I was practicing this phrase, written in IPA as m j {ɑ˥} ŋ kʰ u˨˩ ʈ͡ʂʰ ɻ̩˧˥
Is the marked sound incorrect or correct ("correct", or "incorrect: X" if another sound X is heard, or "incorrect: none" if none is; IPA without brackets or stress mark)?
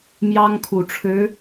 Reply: correct